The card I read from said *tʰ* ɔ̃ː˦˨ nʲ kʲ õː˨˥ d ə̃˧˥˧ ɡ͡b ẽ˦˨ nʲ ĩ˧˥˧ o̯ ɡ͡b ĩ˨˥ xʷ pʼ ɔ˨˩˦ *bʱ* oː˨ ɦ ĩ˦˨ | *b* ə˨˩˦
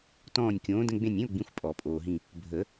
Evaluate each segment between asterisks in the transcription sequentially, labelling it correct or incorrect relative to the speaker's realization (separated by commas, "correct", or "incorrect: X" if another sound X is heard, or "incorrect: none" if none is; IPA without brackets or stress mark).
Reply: incorrect: t, incorrect: pʼ, incorrect: bʱ